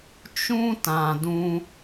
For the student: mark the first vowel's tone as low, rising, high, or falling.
high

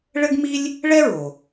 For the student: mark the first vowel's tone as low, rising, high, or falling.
high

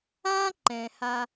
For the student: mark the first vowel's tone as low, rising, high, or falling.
high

